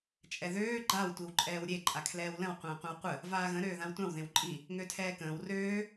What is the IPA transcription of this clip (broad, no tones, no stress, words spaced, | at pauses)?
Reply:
t͡ʃʼɛðøː ɡ͡ǃaw tʷiwǃʼɛːwɾʲe ǃʼakʰlɛːwlə̃w qʷə̃ːqʷə̃wqʷə | vaːɣə̃ ɾøːðãwtʷãw ðẽwǃʼi | ŋøtʰɛːkə̃ːw røː